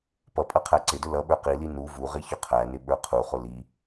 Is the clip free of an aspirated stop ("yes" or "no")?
no